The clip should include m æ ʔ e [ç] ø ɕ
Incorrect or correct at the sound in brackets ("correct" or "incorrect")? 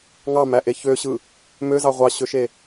correct